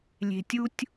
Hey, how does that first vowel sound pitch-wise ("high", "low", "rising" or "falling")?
low